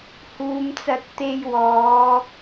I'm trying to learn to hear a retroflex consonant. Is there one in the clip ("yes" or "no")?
no